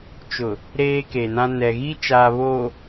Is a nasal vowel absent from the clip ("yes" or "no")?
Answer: no